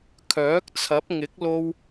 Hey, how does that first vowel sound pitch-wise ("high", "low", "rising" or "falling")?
rising